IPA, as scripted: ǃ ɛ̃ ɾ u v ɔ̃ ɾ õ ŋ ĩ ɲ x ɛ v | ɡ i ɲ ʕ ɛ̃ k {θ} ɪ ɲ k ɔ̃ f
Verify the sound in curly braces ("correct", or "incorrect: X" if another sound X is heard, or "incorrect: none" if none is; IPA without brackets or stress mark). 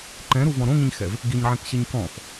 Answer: incorrect: ɕ